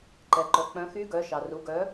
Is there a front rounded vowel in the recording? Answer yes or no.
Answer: yes